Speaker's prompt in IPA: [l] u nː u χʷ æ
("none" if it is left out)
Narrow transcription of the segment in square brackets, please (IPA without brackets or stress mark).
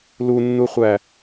l